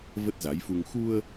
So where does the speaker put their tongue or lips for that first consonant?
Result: lips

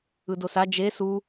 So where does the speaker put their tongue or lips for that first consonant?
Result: tongue tip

